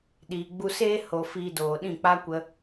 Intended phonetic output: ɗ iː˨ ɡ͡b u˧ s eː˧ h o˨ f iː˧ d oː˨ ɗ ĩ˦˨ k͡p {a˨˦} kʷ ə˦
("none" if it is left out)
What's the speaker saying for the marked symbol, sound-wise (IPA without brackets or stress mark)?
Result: a˦